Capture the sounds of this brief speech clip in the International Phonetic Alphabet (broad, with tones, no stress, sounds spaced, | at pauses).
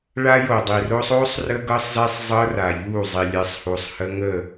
ɭ a˦ j o˨ dˤ i˨ r o˦ sˤ o˦ sˤ r ə˦ ɡ ɤ˦ sˤ z ɛ˦ sˤ zˤ ɤ˦ r a˨ ʎ u˦˨ zˤ i˨ lʲ ɛ˨˦ sˤ h u˨ sˤ h ə˦ ŋ ə˦˨